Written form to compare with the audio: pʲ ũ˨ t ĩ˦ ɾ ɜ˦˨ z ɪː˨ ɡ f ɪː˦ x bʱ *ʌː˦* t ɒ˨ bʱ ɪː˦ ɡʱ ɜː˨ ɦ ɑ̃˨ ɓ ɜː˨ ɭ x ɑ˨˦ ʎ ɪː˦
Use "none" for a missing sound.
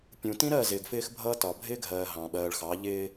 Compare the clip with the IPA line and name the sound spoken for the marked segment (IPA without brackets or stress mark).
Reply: ʌː˦